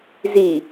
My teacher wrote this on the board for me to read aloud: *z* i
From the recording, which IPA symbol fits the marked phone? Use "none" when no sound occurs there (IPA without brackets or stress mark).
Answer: z